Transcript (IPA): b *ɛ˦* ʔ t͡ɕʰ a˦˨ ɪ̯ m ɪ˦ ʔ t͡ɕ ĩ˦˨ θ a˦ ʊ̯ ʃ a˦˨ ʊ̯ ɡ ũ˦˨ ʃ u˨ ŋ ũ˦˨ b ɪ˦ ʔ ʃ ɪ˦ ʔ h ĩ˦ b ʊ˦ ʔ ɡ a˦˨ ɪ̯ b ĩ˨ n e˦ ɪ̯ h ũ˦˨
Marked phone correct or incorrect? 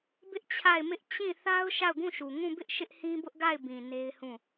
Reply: incorrect